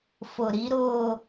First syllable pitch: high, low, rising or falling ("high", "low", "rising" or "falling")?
low